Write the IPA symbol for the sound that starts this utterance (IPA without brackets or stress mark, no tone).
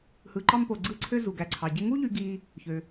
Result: h